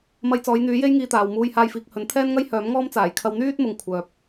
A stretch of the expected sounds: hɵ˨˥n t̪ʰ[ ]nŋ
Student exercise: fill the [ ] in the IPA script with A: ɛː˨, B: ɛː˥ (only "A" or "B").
B